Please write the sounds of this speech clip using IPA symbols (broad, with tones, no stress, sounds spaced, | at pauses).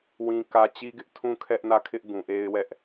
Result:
w ĩ˦ k ä˦ t͡ɕ i˦ ɡ ɪ˦ ʔ tʰ ũ˦ kʰ ɛ˦ ʔ n ä˦˨ kʰ ɪ˦ ʔ ɡ ũ˨ ʔ e˦ ɪ̯ w ɛ˦ ʔ